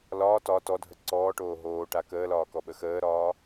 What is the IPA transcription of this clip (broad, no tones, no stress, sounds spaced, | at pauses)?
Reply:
l ɒː t ɒ t ɔ dʱ ə ǀ ɔː ʈ oː ɦ oː ʈ a k əː l ɒː k ɔ ɓ ə x əː ɾ ɒː